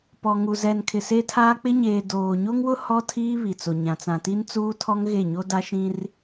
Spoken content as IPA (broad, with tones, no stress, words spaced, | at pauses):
pɔ˨ŋu˨ zɛ˨n kʰɪ˨se˦tʰaː˦ k͡pɪ˦ɲeː˨ doː˨ɲo˦ŋwʊ˦ hɔ˦tʰiː˦ βi˨t͡so˨ɲã˨ t͡sã˨ti˦nt͡suː˦tʰɔ˦ŋ ɣe˦˨ɲo˦da˦ʃĩ˦r